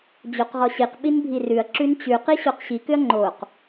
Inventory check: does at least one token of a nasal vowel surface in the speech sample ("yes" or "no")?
no